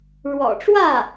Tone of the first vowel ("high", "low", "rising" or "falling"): low